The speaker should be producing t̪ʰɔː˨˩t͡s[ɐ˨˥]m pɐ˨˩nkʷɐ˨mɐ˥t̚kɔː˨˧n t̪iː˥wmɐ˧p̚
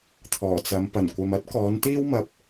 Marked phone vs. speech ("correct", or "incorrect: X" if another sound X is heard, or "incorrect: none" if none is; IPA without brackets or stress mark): incorrect: ɐ˨˧